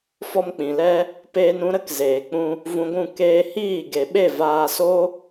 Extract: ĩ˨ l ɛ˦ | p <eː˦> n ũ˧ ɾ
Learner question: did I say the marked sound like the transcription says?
no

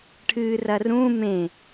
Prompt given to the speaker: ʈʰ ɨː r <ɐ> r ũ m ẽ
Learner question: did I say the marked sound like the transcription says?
yes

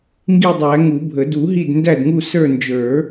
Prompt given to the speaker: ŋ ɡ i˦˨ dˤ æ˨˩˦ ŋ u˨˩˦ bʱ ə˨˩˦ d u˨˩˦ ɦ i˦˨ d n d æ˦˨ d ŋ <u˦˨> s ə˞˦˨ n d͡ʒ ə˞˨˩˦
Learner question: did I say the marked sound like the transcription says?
yes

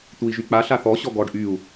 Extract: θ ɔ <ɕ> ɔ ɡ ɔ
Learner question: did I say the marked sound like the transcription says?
yes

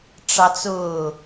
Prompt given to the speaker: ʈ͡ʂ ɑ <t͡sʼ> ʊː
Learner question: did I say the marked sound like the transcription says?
no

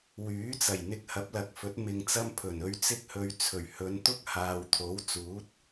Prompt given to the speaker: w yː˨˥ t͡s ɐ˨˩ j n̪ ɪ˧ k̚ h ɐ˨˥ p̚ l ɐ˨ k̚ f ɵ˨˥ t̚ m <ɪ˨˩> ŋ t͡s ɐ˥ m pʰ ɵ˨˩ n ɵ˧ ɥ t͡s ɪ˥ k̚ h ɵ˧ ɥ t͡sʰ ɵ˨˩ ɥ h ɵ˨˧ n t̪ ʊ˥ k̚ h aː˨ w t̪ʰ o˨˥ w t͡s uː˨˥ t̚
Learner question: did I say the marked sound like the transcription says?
no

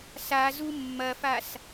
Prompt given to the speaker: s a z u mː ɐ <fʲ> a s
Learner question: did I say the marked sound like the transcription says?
no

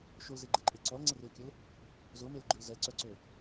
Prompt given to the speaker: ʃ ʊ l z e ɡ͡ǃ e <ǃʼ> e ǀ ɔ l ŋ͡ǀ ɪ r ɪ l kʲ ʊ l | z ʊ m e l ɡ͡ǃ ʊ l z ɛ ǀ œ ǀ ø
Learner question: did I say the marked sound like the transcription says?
yes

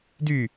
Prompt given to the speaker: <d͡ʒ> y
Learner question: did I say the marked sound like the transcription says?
no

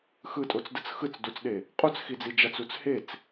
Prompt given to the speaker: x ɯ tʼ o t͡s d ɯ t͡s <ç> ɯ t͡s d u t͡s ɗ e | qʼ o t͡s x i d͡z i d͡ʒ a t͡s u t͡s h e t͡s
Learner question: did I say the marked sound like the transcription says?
no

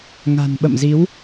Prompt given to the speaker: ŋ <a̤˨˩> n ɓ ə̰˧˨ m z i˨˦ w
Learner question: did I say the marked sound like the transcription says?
yes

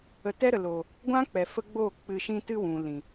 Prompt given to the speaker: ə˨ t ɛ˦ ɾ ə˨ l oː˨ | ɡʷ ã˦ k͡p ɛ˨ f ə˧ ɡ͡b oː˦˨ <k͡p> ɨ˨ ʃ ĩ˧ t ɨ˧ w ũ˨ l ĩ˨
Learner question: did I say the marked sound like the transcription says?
yes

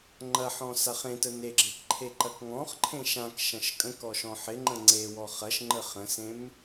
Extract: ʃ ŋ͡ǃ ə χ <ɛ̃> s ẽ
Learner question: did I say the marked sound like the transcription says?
no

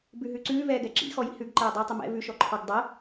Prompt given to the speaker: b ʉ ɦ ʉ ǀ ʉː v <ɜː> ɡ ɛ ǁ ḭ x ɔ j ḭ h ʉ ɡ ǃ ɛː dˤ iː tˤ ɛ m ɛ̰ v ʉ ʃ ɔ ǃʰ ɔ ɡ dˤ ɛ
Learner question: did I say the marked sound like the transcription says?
no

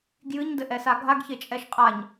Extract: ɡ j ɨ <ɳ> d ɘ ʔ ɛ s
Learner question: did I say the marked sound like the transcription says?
no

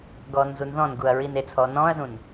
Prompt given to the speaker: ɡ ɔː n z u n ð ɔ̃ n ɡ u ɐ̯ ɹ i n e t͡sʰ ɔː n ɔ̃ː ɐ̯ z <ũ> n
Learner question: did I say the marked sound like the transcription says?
yes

